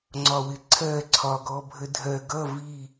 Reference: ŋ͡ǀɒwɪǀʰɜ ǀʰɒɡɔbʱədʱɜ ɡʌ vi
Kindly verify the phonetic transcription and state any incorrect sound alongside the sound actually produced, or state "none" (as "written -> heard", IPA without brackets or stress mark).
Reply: none